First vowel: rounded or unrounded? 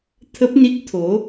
unrounded